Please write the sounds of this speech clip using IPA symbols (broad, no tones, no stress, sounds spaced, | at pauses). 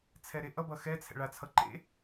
t͡sʰ ɛ ɾ e ʔ ʌ b ʌ x ɛ t͡sʰ ɛ̰ ɭ a t͡sʰ ʌ ǃ ḛ